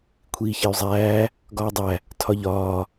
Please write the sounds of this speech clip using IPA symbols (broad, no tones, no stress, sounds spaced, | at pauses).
kʷʰ iː ç e y̯ zˤ æː | ɡ ɒː dˤ æ | tʰ ɒ ʎ ɒː